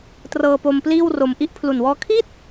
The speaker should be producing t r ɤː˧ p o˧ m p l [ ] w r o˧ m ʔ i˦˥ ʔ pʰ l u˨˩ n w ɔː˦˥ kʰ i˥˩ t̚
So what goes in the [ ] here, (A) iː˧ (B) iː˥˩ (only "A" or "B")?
B